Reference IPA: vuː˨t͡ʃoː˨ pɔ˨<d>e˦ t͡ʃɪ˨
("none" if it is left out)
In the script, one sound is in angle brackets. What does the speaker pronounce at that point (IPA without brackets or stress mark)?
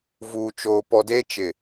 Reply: d